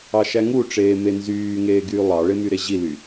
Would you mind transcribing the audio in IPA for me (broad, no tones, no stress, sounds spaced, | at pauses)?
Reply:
ɑ ʃ æ ŋ u ʈ͡ʂ eː m e n z yː ŋ eː ɡ yː lˠ ɑ ɭ e m y ɾ e ʑ i l y